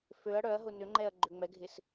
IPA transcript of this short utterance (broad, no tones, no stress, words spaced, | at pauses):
føɐ̯ ɽœɐ̯ɦʊ nʏŋ͡ǃɛɐ̯ ɡ͡ǃøŋ͡mɛɡʱɪs